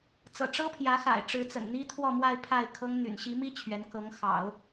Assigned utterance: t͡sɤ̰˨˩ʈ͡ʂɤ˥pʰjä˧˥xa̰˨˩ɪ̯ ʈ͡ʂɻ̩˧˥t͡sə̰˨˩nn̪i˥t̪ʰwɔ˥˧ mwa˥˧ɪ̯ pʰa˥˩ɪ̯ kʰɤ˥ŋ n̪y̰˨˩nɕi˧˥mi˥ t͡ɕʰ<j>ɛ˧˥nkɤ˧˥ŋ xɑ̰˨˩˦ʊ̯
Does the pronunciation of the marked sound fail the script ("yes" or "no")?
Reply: yes